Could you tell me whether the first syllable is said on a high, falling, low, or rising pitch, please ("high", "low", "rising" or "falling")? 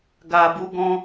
low